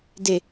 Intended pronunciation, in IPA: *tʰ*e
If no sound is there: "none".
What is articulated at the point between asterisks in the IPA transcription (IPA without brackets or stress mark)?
d